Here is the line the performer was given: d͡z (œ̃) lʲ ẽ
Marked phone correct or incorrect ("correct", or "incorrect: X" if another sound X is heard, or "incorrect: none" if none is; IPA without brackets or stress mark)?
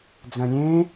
correct